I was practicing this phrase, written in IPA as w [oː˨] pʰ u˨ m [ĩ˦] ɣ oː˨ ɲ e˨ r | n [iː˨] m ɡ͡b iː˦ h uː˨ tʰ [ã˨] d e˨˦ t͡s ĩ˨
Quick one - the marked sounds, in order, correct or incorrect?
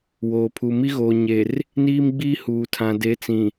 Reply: correct, incorrect: i˦, incorrect: iː˦, correct

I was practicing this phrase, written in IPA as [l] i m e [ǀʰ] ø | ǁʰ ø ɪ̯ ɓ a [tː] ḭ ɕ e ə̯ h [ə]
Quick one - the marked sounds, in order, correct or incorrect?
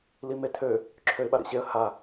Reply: correct, incorrect: tʰ, incorrect: ɾ, incorrect: a

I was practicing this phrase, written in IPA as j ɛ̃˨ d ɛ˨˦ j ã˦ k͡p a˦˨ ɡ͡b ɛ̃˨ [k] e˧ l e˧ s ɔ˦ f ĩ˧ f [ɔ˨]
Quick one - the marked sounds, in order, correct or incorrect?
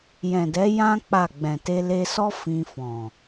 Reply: incorrect: t, incorrect: ɔ̃˨

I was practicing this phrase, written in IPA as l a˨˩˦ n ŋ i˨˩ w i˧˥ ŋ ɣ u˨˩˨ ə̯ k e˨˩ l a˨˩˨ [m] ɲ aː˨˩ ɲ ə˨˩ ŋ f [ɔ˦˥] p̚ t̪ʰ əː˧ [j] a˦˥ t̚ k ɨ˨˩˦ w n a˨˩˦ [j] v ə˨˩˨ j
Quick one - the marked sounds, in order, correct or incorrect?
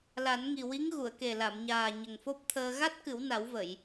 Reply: correct, incorrect: o˦˥, incorrect: ɣ, incorrect: w

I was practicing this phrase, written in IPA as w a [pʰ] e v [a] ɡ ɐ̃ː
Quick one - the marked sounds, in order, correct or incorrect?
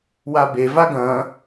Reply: incorrect: b, correct

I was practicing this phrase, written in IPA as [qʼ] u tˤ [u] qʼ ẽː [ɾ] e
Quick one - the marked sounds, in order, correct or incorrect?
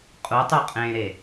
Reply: correct, correct, correct

